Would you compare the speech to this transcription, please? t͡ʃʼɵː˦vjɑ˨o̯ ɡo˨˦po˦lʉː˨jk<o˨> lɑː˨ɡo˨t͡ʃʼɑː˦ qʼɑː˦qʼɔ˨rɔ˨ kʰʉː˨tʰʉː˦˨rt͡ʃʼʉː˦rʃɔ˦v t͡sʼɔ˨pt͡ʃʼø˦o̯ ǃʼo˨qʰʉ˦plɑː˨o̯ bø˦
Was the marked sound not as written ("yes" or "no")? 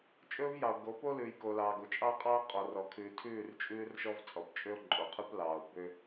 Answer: no